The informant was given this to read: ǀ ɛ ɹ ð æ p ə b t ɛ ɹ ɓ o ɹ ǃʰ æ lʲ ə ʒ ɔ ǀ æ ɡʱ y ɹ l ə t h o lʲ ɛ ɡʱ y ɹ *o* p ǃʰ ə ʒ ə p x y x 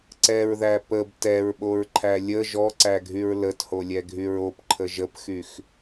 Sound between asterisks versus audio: correct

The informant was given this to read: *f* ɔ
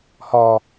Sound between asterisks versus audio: incorrect: h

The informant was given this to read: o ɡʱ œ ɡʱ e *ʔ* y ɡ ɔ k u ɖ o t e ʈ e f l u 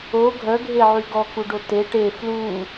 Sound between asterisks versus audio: incorrect: ʕ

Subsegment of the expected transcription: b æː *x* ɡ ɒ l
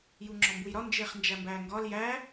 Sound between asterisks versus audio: incorrect: ŋ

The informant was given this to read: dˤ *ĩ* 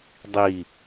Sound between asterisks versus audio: incorrect: i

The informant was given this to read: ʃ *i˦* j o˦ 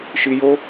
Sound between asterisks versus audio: correct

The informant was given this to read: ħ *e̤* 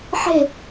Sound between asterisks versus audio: correct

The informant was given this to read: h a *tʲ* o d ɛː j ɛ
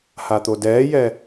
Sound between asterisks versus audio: incorrect: t̪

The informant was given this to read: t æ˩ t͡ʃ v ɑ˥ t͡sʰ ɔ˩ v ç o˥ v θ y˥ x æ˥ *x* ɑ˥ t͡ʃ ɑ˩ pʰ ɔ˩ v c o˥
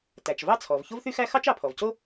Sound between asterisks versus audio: correct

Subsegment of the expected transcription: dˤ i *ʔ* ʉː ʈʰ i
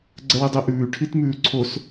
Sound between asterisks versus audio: correct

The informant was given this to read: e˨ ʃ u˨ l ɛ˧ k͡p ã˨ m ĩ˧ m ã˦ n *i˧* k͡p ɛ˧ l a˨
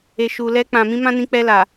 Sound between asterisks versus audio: incorrect: ĩ˧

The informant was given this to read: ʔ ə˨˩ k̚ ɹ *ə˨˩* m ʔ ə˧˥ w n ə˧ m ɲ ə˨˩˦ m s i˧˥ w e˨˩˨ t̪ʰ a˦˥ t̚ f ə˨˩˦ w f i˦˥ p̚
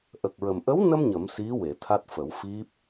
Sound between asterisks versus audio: correct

